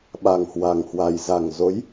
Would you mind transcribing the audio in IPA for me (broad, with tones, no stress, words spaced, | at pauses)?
ɓa˨˩ŋhwa˨˩ŋhwa˨˩j za˨˩ŋzo˨˦j